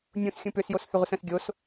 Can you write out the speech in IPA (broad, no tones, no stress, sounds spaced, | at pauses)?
nʲ ũ s xʲ ũ p ʏ s j o s θ ʏ ʁʷ ə s ə̃ s ɡʲ o s